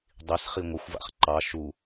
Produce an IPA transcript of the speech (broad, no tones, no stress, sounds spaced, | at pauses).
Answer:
dˤ i s χ i ŋʷ ə xʷ v a̰ χ ǃ ɑ ʃ u